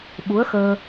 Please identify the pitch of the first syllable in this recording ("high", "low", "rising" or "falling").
rising